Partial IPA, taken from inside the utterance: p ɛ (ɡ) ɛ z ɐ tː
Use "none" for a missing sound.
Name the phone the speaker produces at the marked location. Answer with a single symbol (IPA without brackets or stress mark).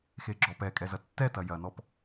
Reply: kʼ